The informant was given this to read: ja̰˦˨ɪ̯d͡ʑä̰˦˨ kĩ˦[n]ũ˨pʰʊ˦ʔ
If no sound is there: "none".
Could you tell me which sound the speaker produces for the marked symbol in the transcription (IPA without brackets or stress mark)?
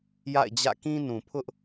n